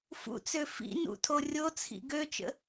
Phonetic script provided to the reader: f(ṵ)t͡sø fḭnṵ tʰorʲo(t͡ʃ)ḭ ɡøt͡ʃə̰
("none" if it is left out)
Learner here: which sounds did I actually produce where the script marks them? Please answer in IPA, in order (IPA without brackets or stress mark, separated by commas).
ṵ, t͡sʰ